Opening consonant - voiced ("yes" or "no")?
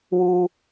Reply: yes